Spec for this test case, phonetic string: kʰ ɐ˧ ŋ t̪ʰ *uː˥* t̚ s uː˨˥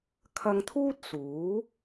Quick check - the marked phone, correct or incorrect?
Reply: correct